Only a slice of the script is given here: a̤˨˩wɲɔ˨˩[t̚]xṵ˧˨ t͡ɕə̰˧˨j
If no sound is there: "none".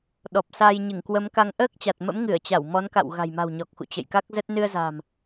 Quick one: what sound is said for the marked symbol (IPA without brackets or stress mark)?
k̚